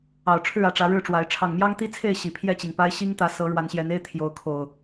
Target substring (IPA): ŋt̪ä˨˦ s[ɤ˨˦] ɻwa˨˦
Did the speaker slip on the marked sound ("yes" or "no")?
no